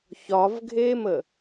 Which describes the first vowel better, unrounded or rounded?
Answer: rounded